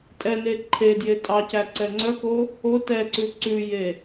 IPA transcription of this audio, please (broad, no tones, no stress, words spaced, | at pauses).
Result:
tʼɛne ǃʰedje tʼɑcæ ǀɛŋ͡ǀœko | o tɛǀʉ ǀʉje